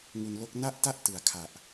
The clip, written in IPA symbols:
ŋ u˧ n l o˦˥ k̚ n a˥˩ ʔ t a˥˩ ʔ t ɯ˨˩ a̯ kʰ a˨˩ ʔ

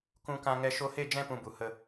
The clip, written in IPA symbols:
k ũ˧ k ã˧ ŋ ɛ˧ ʃ o˧ h e˦˨ d͡ʒ ɛ̃˧ p ũ˧ b u˨ h ə˧

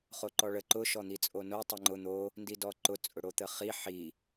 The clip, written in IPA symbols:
χ o ǃ ɔ ɭ ə ǃ ʊ ʃ ɔ n̪ i t͡sʼ o n o tˤ ɯ ŋ͡ǃ ʊ n̪ o | n d i d ɔ ǃ ʊ t͡sʼ ʊ ɽ o t̪ ə χ i ħ i

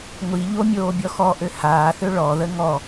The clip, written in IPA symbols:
ŋʷ i ʎ o mʲ oː bʲ ɔ x ɔ ʔ ø h aː θ ø ɭ ɔ ð ə ŋ ɔ

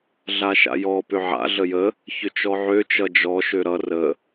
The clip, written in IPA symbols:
ɮ a ʃ a̰ j ɔ p ʏ ʕ a̰ ɮ ə j ə | ç ʏ t͡ʃ ɔ ʕ ø t͡ʃ ʌ d͡ʒ ɔ ʃ ø ɾ ʌ r ə

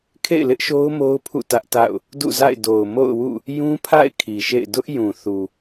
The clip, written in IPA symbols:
kʰ ḛ˦˨ ɪ̯ l ɪ˦ ʔ ʃ o˦ ʊ̯ m o˦ ʊ̯ pʰ ṵ˦˨ t ä˦ ʔ t a̰˦˨ ʊ̯ | d ṵ˦˨ z a̰˦˨ ɪ̯ d o˨ ʊ̯ m o̰˦˨ ʊ̯ w ṵ˦˨ | j ũ˦ pʰ a̰˦˨ ɪ̯ kʰ i˨ ʃ ḛ˦˨ ɪ̯ d ʊ˦ ʔ j ũ˨ θ u˨

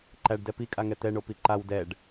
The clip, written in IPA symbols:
ǃ æ ɖ d ɛ p i kʼ a ŋ ɛ t̪ ɛ ɳ o p i ǃ a w d ɛ ɖ

